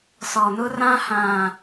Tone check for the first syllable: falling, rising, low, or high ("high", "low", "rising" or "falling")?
low